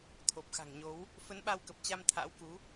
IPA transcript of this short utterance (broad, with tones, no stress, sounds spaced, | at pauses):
t̪ʰ o˨˩ p̚ x a̤˨˩ ŋ ɲ o˨˦ w | f ə˨˦ n ɓ a˧ w k ə˨˩ p̚ t͡ɕ a˧ m t̪ʰ a̰˧˥ w k u˨˦